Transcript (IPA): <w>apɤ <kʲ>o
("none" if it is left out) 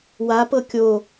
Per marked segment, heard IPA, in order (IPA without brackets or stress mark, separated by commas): w, kʲ